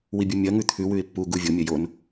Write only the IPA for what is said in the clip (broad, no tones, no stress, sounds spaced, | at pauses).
w i bʲ u mʲ ɐ ŋ ʉ t̪ʰ ʉ w ʉ ɪ̯ pː u ɡ u vʲ o mʲ ɐ j o n